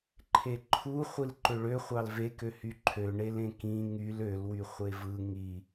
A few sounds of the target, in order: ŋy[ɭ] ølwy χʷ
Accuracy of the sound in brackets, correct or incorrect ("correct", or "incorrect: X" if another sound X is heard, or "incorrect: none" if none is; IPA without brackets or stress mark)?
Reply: incorrect: l